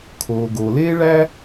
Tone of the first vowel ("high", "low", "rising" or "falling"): low